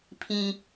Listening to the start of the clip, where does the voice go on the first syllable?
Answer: high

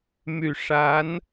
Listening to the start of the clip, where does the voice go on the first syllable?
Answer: low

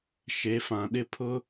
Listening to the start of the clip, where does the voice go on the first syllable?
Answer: rising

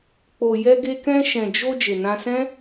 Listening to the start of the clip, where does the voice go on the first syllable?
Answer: low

